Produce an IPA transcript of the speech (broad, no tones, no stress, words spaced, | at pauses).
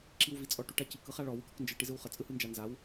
ǁiwvit͡sʼɔʈuʈ acik ɯχaɭɔ wɯkɔknd͡ʒɯ ʈizɯwχə t͡sʼɯhɯnd͡ʒanzaw